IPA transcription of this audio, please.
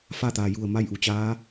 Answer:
fa˥˨t̪aː˩ ju˧˩ə̯ ma˥˨jʔu˩t͡ɕaː˧˥

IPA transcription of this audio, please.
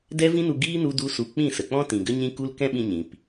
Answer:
dɛ˦vĩ˦nu˧ ɡiː˦ nu˦du˦su˧ k͡pĩ˦˨sə˨k͡pɔ̃˦ tĩ˨ɡə˦ɲĩ˦ku˦l kɛ̃˦ɓĩ˧ ɲĩ˨p

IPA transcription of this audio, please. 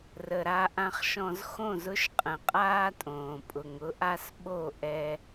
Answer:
rə˨ ɾa˨ʔã˨χʃɔ̃˨z xõ˦˨zʊ˦ʃ qʼə̃˨qʼaː˦tʼõː˨ pʼʊ˨ŋʊ˦ʔa˦s ɓo˦˨ʔɛ˦

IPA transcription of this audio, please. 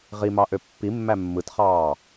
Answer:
ʁimɑʔø pːimːæ mːɯtχɑː

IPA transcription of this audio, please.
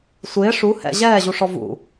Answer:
sʷɪː ʂu hɛ̰ ʑɛːʑuʂɔ vṵ

